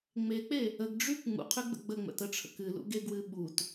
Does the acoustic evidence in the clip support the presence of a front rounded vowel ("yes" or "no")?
yes